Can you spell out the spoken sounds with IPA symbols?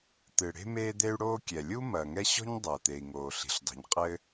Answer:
t̪ ɨ˩ ɽ e̤˥ m eː˥ d̪ e˥ y̯ ɽ oː˥ kʲ ɛ˩ lʲ u˥ m ɐː˩ ŋ ɛ˥ ɕ ɔ̤˥ ɲ dˤ ɐː˩ t̪ e˩ i̯ ŋ oː˩ ɬ i̤˩ ɬ dˤ i̤˩ ɲ qʼ ɘː˥

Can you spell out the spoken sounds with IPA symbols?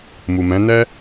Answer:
m u˨ m ɛ̃˨˦ n ɛ˦

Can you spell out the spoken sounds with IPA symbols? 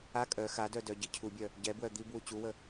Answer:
a kʼ œ x a d œ d œ ɟ i cʰ u bʲ œ | ɟ ɛ b w œ d̪ i b w u t͡ɕ u w ə

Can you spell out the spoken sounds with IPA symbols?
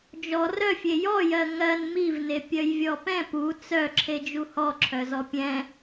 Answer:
d͡ʒ ɔ r œ fʲ e j ɔ j ɜ ŋ ɜ n m i v n e pʲ œ j vʲ ɔ p ɛ̃ p u t͡s œ ǁʰ e d͡ʒ u h ɔ ǁʰ œ z ɔ pʲ ɛ̃

